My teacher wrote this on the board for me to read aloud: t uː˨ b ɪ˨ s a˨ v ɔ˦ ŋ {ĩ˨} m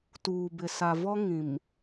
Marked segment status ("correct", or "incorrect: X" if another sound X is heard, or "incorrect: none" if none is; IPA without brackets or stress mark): correct